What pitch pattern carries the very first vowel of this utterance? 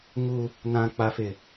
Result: high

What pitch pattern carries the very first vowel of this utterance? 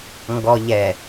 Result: low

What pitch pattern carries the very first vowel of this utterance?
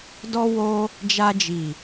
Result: high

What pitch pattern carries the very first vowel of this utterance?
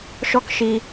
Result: high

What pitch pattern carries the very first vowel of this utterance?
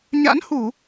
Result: rising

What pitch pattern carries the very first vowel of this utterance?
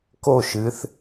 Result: falling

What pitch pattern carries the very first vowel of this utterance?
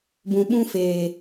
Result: low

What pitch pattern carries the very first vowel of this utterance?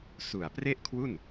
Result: low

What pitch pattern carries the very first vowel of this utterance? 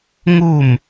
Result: falling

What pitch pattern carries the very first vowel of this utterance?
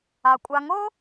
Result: low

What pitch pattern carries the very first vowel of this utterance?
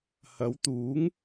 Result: rising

